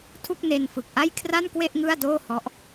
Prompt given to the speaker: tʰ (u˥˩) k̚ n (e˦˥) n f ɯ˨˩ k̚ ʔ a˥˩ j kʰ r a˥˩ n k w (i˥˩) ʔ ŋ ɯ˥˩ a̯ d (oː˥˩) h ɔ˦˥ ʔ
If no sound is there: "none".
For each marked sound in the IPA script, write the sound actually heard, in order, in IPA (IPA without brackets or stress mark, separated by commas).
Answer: u˥˩, e˧, e˥˩, oː˥˩